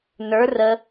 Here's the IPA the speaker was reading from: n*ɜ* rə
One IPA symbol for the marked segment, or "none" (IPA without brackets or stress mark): ə˞